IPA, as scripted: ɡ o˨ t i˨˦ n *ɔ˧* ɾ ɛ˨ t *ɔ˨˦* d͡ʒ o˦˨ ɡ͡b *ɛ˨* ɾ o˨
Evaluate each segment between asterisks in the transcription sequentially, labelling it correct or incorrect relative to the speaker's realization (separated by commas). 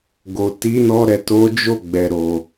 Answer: correct, incorrect, correct